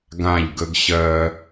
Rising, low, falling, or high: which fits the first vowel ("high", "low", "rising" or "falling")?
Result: falling